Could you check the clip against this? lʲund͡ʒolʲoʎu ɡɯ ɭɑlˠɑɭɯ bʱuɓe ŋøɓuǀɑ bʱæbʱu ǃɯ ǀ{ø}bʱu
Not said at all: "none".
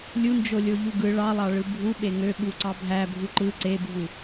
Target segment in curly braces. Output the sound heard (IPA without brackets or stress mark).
e